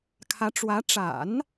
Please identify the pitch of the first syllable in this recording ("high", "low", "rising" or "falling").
rising